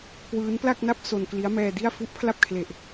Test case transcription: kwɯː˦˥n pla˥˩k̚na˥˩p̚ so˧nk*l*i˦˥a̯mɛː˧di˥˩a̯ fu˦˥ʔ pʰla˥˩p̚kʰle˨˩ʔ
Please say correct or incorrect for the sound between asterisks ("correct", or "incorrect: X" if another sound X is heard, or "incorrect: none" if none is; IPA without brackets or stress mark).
correct